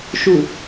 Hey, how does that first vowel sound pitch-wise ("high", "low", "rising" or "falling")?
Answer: low